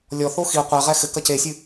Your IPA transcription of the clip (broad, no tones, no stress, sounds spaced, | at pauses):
lʲ ɔ θ o x i qʷ ɛ ʁ ɛ x ɘ k ɐ c e sʲ ɨ